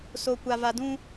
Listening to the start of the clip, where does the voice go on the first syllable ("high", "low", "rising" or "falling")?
low